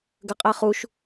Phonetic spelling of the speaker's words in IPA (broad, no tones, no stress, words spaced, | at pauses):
ɡəqʼɛ χuʃ